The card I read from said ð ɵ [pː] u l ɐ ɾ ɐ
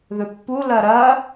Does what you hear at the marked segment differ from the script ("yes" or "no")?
no